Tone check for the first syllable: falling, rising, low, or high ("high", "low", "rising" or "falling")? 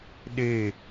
falling